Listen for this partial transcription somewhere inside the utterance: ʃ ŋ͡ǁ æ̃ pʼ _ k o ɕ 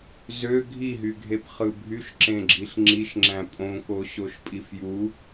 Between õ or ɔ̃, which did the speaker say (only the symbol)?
õ